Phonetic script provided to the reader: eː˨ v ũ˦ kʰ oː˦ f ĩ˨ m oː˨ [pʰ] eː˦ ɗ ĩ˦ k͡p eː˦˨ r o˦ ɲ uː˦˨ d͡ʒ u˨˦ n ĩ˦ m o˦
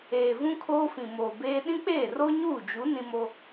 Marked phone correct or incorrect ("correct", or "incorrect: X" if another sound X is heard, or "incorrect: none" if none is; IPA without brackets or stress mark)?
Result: incorrect: b